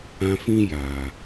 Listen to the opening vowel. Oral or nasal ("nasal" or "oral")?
nasal